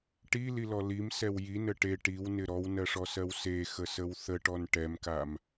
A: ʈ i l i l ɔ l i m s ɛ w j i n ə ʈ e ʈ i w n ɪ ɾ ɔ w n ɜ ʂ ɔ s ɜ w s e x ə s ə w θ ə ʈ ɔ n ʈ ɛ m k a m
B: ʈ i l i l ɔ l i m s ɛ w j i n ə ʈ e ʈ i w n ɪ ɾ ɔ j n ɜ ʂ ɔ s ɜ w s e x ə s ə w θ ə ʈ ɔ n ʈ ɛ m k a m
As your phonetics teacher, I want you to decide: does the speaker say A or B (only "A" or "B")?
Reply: A